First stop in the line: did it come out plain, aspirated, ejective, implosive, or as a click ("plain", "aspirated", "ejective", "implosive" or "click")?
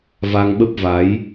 implosive